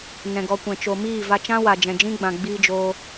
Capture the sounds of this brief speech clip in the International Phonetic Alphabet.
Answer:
n ɛ̃˨ ɡ ɔ˨ kʷ ɛ̃˨ t͡ʃ o˨ m iː˦˨ v a˧ t͡ʃ ã˦ w a˨ d͡ʒ ɛ̃˨ d͡ʒ ĩ˦ ɡ͡b ã˨ ɡ͡b iː˦ d͡ʒ oː˦

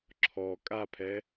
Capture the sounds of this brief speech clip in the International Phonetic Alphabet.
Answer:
ǁʰ ɔ kʼ a pʰ ɛ

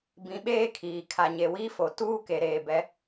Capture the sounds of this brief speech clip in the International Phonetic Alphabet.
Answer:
b ĩ˨˦ ɓ eː˦ kʰ iː˨ kʰ a˨ ɲ e˨ w iː˦ f o˨ t uː˦ k e˨ ɾ eː˨ b ɛ˨˦

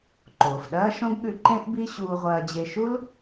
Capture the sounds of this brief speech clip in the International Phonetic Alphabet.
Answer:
ǃ oː˩ f ɗ ɐː˥ ʃ õ˥ ɡ ɠ ʉ˧ ǃ ẽ˥ ʔ b i˥ ɕ uː˧ ʁʷ ɐː˧ d͡ʑ e˧ ʃ u˥ l

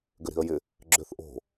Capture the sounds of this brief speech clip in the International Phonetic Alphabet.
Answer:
ɡ ʏ ɾ i̤ ə̯ j ɪ | ɡ͡ǁ ʏ θ ʔ o̤

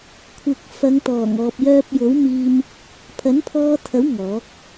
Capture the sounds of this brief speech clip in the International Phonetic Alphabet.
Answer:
kʷʰ ɪ˨ k̚ f ɐ˨˧ ŋ t̪ ɔː˨˩ ŋ ɔː˨ p̚ j œː˧ p̚ j o˨˥ w m iː˧ m | pʰ ɐ˨˥ n pʰ ɔː˧ t̪ʰ ɐ˨˥ w ŋ ɔː˨˥ k̚

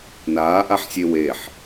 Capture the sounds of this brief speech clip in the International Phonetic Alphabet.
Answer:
n aː ʔ a ħ sʲ e w e ħ

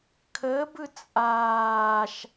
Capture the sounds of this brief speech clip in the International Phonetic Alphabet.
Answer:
kʰ ə b ɯ t͡sʼ aː ʃ

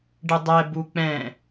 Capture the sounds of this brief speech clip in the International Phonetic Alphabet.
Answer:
ɖ ɨ dˤ ɛ b u k͡p ɛ̃

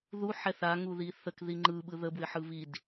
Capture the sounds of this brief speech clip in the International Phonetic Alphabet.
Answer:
ð u ħ ɛ θ a ŋ u ð i θ ə k ð i ŋ͡ǃ ɯ ɓ ɯ ð ə b w ɪ ħ ɯ β i d

